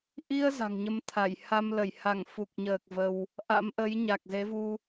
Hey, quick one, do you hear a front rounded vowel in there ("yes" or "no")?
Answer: no